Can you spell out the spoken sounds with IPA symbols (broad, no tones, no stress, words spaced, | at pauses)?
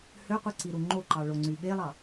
høqʷiǀiɾu ŋ͡ǃoǃɑ ɭoŋ͡ǀyɓelˠɑ